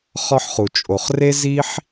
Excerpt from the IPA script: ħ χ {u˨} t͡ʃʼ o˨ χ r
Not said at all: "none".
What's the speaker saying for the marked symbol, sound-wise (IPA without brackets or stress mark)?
u˨